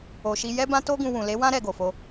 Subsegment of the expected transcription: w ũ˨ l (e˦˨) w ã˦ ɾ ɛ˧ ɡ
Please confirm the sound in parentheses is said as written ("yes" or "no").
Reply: no